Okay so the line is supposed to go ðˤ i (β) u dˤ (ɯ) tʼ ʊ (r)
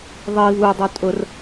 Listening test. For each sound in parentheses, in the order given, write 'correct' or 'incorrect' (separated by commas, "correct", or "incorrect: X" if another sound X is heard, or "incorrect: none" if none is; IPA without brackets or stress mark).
correct, incorrect: u, correct